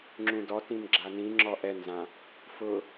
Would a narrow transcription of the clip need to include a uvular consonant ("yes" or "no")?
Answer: no